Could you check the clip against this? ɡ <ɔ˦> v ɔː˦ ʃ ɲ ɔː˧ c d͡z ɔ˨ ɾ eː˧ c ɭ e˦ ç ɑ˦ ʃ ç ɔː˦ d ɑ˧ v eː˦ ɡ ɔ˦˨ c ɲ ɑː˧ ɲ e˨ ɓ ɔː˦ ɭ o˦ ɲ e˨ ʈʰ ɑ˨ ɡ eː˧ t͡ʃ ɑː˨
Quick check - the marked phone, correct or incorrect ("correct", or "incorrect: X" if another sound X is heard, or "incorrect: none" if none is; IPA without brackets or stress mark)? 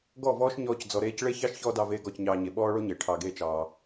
incorrect: ɔ˦˨